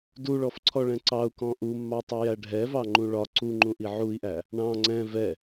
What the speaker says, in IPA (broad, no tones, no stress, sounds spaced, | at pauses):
d u ɭ ɔ f ǀʰ ɔ ɭ ɛ̃ ǀ ɑ u̯ k ɔ̃ ʔ u mː ɑ tˤ u j æ ɖʱ ɛ v ɑ ŋ͡ǃ ũ ɭ ɒ ǀ u ŋ͡ǃ ũ ʔ i ʕ u i̯ ʔ æ | ɳ ɑ̃ ŋ͡ǀ ɛ̃ v ɛ